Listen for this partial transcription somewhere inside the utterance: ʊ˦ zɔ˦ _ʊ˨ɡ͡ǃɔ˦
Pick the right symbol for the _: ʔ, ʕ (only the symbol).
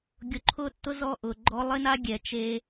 ʔ